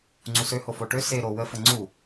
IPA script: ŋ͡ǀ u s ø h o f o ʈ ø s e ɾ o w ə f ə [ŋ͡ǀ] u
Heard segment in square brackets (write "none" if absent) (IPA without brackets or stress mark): ŋ͡ǀ